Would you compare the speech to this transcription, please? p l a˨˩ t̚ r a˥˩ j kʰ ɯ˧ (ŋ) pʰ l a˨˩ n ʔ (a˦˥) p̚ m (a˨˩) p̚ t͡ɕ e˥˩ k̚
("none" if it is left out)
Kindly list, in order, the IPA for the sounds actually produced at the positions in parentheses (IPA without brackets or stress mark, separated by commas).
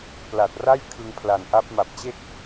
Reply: ŋ, a˦˥, a˨˩